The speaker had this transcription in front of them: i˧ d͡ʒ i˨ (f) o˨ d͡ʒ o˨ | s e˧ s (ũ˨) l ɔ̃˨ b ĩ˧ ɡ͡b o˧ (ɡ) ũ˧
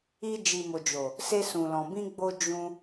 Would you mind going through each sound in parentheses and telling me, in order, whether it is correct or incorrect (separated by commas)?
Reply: incorrect, correct, incorrect